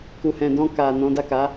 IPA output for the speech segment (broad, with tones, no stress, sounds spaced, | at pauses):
k u˨ h ɛ̃˨ d ɔ̃˧ k a˨ n ɔ̃˨˦ d a˦˨ k a˨˦